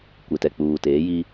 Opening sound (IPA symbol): kʷ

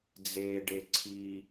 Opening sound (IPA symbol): d͡z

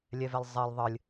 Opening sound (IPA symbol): lʲ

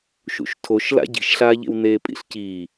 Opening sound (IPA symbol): ʃ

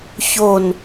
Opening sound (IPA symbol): ç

